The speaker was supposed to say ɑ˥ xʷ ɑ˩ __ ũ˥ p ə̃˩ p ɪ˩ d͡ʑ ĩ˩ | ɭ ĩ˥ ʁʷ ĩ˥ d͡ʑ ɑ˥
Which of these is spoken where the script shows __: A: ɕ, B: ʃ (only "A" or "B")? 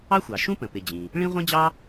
B